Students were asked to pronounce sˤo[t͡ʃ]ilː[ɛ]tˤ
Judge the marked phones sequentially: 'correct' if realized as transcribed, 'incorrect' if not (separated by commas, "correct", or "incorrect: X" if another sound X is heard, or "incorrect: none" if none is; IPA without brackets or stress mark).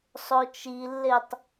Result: correct, incorrect: e